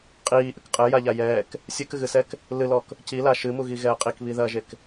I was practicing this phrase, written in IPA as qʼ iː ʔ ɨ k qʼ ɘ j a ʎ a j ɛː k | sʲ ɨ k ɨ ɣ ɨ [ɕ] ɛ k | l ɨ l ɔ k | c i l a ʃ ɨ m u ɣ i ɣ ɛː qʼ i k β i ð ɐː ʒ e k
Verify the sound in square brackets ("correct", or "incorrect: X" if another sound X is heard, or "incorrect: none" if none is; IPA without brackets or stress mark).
incorrect: s